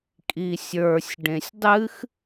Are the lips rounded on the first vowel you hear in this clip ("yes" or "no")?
no